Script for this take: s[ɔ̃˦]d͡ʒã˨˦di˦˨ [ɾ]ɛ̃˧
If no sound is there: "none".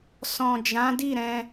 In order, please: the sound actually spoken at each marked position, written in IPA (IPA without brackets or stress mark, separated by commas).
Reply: ɔ̃˨, ɾ